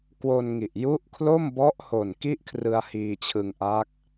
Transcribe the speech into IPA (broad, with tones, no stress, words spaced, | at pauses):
kwo˧nŋi˨˩ʔ ju˦˥ʔkʰlo˥˩mbɔ˦˥ʔho˨˩n ki˥˩ʔkʰrɯ˧a̯ hiː˧t͡ɕʰɯ˧ŋʔa˦˥k̚